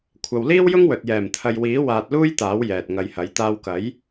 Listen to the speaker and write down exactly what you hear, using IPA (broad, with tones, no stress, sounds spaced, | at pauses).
kʷʰ ɐ˨ w l iː˥ w j ʊ˥ ŋ w ɵ˨ t̚ j ɛː˨˩ m t̪ʰ ɐ˨ j w iː˨˥ w aː˧ t̚ l uː˥ j t̪ aː˨˥ w j ɛː˨ t̚ ŋ ɐ˧ j h ɐ˨˥ j t̪ aː˧ w k ɐ˨˥ j